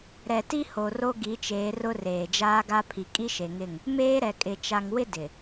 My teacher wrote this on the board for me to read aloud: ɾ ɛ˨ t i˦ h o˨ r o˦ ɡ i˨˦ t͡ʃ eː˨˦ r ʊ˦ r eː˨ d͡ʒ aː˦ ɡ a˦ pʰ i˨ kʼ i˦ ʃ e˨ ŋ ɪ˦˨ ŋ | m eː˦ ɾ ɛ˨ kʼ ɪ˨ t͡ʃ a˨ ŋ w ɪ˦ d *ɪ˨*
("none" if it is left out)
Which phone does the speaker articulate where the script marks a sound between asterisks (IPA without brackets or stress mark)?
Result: ɪ˨